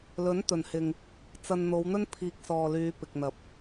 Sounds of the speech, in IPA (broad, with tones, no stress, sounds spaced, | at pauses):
l ɵ˨˥ n t̪ ɵ˨˩ n h ɪ˨ ŋ | t͡s ɐ˧ n n̪ o˨˧ w n̪ ɵ˥ n pʰ iː˨ k̚ s ɔː˨ l yː˨˧ p ɪ˨ k̚ n̪ ɐ˨ p̚